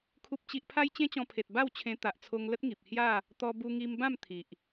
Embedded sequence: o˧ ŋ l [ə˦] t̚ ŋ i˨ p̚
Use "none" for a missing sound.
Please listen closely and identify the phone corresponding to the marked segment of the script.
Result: ə˦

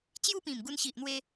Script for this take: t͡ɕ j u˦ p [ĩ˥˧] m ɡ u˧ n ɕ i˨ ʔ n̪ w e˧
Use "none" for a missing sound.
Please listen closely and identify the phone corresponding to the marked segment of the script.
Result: ĩ˨˩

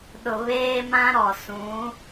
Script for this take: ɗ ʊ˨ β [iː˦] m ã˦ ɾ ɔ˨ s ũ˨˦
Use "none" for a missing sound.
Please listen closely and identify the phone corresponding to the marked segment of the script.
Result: eː˦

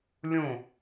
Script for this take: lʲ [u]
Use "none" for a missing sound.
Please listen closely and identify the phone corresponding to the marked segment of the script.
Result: ũ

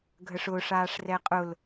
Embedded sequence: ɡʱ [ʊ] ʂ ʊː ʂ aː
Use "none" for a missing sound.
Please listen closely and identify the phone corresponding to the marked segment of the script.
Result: ə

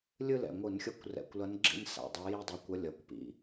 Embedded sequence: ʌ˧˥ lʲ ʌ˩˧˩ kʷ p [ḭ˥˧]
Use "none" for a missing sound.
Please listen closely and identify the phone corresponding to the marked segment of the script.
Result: ḭ˩˧˩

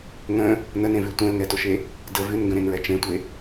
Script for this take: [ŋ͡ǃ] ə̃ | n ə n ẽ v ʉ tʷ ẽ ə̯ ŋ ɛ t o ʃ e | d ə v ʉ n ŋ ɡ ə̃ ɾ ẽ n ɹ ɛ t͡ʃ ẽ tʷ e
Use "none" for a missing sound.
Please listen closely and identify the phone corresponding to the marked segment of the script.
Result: ŋ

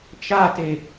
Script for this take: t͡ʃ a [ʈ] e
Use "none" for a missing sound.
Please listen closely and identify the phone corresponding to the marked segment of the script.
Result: t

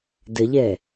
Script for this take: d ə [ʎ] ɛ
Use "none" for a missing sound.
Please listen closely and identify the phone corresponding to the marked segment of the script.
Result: ʎ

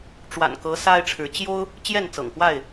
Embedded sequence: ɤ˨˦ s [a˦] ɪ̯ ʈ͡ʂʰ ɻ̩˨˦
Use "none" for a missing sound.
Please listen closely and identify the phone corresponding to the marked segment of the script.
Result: a˦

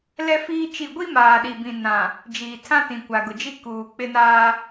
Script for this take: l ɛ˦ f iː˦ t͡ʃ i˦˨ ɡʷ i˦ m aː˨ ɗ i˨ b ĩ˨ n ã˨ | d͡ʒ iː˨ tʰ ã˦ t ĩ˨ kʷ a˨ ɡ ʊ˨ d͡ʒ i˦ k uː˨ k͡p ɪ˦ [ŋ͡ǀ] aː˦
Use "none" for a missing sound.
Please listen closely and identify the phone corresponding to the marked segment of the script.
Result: n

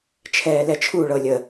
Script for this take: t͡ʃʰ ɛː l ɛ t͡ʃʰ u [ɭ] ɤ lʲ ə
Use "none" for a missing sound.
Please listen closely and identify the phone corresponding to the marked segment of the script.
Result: ɭ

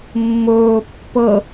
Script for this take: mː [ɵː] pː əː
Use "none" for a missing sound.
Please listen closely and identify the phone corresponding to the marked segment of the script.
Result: ɵː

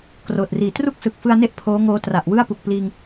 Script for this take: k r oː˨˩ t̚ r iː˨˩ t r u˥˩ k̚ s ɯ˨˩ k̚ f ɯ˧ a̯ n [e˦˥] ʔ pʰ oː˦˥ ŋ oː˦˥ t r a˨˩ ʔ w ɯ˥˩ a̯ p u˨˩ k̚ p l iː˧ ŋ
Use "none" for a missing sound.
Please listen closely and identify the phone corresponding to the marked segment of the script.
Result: e˦˥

